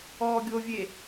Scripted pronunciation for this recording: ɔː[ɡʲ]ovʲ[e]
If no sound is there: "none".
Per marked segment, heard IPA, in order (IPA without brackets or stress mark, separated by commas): ɡʲ, e